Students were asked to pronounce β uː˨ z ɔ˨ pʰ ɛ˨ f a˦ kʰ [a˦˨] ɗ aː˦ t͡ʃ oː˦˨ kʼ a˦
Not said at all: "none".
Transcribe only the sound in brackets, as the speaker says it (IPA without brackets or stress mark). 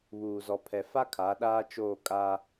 a˨˦